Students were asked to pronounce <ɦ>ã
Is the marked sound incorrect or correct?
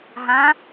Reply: correct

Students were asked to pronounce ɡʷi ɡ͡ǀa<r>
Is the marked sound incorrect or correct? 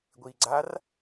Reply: correct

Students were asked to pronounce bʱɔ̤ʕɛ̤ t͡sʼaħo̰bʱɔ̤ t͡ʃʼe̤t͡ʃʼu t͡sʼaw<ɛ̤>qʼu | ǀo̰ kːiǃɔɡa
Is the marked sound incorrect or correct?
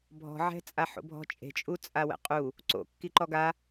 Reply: incorrect: ɛ̰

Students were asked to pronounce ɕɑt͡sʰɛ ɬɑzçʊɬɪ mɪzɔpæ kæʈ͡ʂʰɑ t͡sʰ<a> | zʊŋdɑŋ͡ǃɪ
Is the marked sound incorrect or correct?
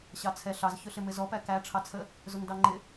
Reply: incorrect: ə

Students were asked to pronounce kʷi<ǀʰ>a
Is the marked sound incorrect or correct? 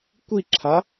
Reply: incorrect: ǁʰ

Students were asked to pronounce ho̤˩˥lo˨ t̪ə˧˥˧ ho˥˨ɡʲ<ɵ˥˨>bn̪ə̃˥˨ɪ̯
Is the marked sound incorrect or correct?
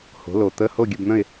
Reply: incorrect: ə˥˨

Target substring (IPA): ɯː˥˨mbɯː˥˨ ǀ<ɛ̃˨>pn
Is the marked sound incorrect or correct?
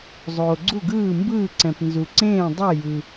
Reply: correct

